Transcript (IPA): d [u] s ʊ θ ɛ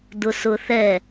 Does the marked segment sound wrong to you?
yes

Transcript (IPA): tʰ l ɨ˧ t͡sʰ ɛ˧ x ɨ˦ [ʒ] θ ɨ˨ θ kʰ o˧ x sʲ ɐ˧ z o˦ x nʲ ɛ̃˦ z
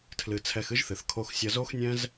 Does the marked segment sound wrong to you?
no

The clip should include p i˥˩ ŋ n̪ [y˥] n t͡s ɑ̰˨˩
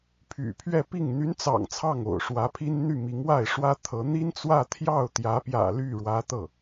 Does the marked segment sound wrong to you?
yes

